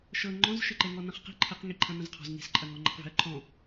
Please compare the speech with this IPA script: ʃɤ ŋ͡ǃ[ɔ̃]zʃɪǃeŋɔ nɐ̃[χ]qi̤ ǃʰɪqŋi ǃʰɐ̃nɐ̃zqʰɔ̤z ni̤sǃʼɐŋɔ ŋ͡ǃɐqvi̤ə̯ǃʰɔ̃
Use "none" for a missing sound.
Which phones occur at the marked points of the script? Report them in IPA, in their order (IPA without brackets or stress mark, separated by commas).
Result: ɔ̃, χ